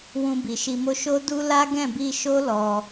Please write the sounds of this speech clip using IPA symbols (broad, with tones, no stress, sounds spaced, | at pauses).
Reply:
w ũ˧ b i˨ ʃ i˧ m o˦ ʃ o˦ d u˦ l a˦ ɡ ɛ̃˦˨ b i˧ ʃ o˦ l ɔ˧